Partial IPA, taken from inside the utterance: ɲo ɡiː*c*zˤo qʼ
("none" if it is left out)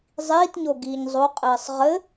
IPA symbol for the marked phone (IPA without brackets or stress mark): ɲ